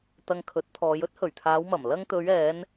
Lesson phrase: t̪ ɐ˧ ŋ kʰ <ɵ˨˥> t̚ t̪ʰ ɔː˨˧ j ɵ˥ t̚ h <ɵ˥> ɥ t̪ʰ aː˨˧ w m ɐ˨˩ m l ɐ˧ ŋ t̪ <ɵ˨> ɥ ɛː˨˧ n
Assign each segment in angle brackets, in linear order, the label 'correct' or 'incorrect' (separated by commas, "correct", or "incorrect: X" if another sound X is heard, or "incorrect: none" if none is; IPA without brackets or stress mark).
correct, incorrect: ɵ˨˩, incorrect: ɵ˨˧